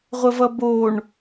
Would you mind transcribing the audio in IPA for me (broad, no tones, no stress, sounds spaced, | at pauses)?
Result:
ʁʷ ə v ʌ b o ɳ